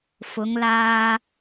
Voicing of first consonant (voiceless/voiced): voiceless